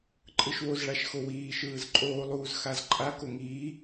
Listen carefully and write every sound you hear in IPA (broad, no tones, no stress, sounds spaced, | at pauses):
ǃʼ ɯ ʃ w o z ɭ a ʃ x o w iː ʃ ɯː z ǃʼ oː lˠ uː z x a z ǃʼ a k o ŋ iː